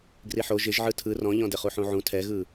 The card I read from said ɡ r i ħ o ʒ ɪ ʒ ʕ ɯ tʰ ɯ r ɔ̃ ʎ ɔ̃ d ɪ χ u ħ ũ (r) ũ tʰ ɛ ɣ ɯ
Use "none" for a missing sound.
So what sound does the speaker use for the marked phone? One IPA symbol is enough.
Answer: ʕ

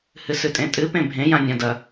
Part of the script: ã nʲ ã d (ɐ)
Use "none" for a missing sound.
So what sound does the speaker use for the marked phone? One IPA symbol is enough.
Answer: ɐ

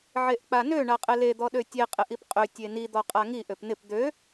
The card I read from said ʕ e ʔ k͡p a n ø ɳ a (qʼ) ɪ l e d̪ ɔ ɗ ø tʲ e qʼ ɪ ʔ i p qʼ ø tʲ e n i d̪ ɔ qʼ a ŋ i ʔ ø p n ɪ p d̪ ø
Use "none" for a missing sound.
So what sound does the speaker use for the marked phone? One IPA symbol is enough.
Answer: qʼ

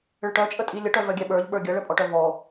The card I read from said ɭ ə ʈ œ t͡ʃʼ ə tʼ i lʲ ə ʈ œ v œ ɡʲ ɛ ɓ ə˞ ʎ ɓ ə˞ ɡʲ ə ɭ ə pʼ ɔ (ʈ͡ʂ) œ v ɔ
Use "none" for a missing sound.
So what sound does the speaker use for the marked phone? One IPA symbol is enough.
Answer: ʈ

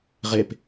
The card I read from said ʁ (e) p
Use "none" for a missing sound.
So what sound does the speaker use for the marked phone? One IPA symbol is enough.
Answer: e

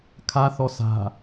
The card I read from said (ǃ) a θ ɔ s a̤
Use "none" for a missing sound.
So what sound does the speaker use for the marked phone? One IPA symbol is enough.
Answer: kʰ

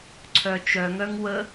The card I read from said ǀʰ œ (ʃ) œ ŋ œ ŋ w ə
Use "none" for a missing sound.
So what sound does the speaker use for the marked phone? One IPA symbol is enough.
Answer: t͡ʃ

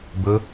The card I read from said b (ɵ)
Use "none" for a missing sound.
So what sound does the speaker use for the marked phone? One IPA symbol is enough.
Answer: ɵ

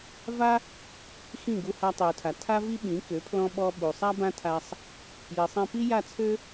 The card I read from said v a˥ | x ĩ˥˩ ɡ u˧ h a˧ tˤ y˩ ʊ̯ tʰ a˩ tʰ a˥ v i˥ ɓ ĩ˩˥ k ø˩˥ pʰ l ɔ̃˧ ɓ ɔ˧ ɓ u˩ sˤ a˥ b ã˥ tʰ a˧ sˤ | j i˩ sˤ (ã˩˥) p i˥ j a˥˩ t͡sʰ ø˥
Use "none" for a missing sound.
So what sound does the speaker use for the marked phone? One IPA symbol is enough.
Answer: ã˧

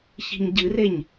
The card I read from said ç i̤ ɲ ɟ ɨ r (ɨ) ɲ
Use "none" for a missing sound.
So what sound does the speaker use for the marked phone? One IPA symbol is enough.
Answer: e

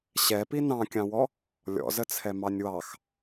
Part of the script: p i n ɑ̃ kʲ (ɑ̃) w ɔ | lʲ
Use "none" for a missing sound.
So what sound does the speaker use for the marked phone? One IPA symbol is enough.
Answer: ɑ̃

